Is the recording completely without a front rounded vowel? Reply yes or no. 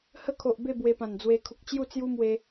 yes